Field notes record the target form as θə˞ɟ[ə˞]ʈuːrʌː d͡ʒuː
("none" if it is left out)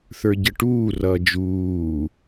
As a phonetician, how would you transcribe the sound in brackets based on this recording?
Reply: ə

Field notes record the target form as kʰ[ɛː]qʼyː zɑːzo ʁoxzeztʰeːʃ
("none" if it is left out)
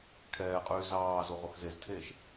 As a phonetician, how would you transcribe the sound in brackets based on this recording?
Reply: ɛː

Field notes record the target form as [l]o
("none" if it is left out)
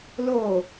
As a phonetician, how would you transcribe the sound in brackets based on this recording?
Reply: l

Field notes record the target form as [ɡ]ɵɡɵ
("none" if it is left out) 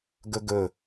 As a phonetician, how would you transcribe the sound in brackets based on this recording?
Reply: ɡ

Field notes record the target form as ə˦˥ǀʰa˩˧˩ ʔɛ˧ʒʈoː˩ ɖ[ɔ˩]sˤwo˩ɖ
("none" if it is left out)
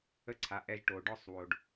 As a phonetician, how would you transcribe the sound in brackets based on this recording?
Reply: ɔ˥˩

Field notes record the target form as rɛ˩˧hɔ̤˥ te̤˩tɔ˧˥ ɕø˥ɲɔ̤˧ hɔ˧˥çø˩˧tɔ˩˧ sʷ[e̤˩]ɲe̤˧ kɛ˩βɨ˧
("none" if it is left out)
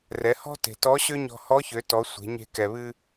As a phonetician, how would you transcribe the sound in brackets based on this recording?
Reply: e̤˩˧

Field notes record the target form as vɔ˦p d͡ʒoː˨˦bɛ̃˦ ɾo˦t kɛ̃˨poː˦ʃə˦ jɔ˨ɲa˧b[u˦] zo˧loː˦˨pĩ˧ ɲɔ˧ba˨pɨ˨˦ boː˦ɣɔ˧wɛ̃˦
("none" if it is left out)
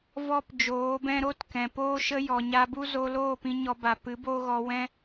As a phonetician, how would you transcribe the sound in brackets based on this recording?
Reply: u˦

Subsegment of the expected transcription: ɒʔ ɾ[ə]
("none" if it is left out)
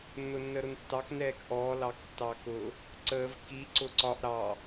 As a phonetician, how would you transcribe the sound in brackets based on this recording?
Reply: ɑ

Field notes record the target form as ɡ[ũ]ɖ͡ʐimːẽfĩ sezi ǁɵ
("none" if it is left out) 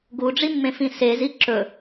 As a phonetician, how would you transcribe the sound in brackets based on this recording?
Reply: u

